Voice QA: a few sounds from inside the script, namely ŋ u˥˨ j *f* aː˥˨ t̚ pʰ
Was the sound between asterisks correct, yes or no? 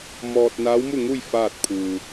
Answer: yes